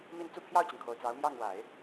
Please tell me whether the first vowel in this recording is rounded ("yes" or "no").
no